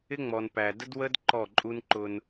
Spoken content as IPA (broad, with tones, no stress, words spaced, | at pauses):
ɪ˦ŋ͡mɔ˨npæ˨də˦d wə˦d ǃɔ˦˨ǃʼu˦n ǃʊ˧n